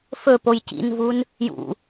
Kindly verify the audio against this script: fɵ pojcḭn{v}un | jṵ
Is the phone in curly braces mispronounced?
no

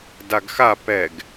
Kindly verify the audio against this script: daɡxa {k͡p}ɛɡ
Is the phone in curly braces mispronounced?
yes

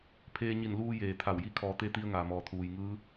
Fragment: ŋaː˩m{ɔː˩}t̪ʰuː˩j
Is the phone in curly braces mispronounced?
no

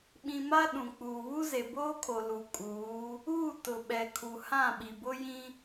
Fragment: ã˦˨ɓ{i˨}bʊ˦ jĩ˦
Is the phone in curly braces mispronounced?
no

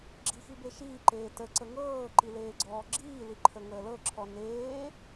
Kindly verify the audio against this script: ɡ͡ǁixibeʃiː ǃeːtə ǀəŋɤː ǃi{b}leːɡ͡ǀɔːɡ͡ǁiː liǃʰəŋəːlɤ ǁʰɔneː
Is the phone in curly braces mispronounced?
yes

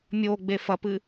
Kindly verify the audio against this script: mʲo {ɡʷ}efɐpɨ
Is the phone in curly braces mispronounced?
yes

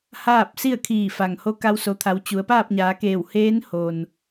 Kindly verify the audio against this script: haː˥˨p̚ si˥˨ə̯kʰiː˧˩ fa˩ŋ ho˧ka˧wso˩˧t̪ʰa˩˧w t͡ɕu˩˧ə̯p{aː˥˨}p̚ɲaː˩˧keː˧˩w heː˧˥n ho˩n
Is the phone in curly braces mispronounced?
no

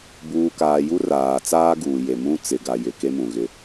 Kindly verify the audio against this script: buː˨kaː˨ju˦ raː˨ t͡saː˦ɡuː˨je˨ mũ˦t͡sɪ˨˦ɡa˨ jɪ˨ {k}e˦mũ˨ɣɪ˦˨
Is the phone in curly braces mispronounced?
no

